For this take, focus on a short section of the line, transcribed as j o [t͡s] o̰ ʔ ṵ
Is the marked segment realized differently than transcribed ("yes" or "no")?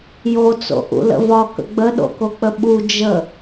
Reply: no